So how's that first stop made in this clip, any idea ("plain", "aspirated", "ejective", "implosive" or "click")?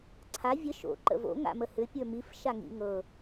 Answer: click